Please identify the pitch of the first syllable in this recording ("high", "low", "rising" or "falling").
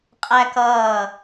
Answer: high